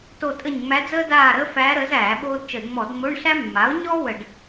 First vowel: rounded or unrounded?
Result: rounded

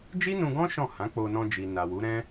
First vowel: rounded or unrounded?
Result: unrounded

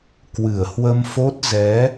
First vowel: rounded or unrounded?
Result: unrounded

